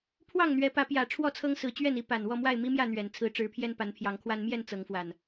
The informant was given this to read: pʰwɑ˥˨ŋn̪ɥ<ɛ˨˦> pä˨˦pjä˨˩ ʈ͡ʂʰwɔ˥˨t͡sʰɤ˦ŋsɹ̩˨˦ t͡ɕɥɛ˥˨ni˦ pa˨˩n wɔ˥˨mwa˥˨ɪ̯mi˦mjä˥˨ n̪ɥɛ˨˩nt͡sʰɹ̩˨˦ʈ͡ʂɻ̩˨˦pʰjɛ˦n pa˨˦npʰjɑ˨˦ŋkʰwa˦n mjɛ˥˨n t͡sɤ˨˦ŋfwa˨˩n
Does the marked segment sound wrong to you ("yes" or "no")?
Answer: no